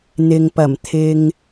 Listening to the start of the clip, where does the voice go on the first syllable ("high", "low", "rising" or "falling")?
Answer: low